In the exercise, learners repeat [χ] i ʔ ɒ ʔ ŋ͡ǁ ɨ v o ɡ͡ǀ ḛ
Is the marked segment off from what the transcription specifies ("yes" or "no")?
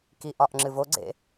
yes